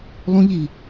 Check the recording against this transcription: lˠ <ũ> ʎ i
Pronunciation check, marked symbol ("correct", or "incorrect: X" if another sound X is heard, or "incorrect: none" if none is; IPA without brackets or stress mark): correct